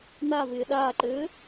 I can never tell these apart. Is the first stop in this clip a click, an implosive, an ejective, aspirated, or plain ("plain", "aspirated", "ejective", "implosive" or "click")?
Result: implosive